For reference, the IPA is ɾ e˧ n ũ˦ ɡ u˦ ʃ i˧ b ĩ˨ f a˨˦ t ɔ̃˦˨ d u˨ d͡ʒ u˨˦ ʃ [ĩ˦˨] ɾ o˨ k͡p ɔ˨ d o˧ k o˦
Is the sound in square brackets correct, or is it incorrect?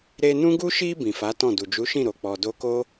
correct